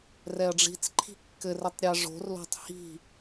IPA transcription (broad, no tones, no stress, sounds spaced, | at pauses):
r ɛ ɐ̯ ɖ͡ʐ i̤ t͡s ǃʰ i̤ kː ɘ r ɘ tˤ ɾʲ ɛ ʐ o̤ r l o̤ tˤ h i̤